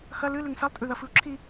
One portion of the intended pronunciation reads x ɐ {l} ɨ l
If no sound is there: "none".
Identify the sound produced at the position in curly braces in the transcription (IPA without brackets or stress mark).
l